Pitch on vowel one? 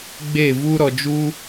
falling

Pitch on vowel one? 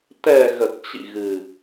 low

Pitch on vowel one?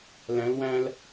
rising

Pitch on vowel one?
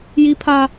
high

